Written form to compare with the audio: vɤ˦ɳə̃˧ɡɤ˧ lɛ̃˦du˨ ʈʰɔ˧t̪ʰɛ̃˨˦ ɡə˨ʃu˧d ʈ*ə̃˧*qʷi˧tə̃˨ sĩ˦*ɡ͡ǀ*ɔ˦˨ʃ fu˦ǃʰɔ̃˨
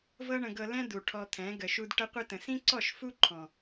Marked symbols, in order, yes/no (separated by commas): no, no